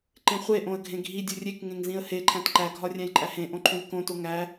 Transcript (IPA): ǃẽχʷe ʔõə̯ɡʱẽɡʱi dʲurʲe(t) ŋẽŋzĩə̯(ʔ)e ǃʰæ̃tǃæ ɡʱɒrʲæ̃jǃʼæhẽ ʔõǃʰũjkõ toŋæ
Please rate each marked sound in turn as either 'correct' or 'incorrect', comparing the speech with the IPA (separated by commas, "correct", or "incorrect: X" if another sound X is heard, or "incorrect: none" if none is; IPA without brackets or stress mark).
incorrect: k, incorrect: h